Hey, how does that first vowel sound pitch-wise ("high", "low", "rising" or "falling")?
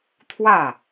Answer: falling